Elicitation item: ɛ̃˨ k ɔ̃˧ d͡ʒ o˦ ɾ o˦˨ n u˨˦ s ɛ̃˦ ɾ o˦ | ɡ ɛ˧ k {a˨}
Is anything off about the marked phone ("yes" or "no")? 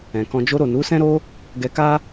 yes